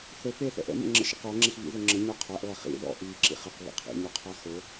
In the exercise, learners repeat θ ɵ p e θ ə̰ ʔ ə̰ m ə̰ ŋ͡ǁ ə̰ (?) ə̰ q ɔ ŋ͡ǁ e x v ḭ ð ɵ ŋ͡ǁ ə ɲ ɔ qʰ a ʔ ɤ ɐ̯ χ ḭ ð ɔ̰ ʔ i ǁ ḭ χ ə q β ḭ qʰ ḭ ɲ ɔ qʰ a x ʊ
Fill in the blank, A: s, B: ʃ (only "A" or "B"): B